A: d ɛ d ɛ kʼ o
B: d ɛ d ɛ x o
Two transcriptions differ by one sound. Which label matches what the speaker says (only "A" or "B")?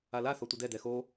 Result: B